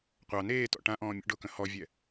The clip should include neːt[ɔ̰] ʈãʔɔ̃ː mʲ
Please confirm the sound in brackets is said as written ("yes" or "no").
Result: yes